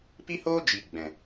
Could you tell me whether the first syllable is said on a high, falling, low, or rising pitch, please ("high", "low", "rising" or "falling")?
high